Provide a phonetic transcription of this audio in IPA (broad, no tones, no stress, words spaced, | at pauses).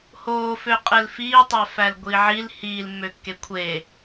hoːfø qʼelfiːtˤæfæl ɡʷiʕil hiːlmːøkːe kʷʰe